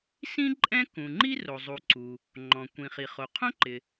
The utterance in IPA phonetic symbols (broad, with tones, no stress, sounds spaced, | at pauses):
s ĩ˥ ǃʼ ɛ̃˥ k ũ˩ ŋ͡ǃ i˥ r o˩ zˤ u˩ ǀ u˩ | ŋ͡ǃ ɔ̃˩ kʷ ĩ˩ χ i˩ χ o˩ qʰ õ˥ ǃ ɪ˩